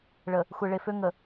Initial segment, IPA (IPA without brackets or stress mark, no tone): ɭ